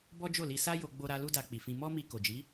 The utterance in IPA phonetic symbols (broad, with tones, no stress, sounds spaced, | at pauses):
b ɔ˦ d͡ʒ o˦˨ l i˧ s a˦ j o˧ ɡ͡b o˧ ɾ a˧ l u˦ d a˧ k͡p i˨ f ĩ˧ m ɔ˦ m i˧ k o˨ d͡ʒ i˨˦